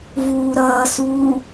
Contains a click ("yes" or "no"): no